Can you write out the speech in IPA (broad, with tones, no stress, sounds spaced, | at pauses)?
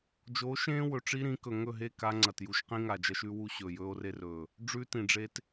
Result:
d͡ʒ oː˨˦ ʃ ẽː˦ w ɵ˨ ʈ͡ʂ i˦ ɾ ĩ˨˦ k ɵ˨ ŋ ɵ˦˨ ɦ e˦˨ k a˦ ŋ͡ǀ ɐ˨ t j u˨ ʃ q ĩ˦ ŋ a˨ d͡ʒ ɐ˦ ʃ ʉ˦ w u˦ ɕ ɵː˨ j ɵː˦ o̯ r e˦ r ɵː˨ | ɖ͡ʐ ʉ˦ t ĩ˨ ɖ͡ʐ e˦ t